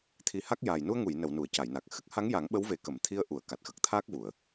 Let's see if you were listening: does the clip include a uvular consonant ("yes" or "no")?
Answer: no